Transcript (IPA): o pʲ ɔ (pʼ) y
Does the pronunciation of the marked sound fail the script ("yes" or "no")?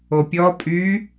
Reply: no